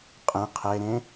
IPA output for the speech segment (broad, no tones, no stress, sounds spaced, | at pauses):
qʼ ẽ qʰ e ɾ ẽ